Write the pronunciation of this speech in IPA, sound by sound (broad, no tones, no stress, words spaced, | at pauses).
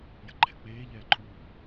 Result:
jə̤ǃʰɛk͡peːʎɛː ǃʼuː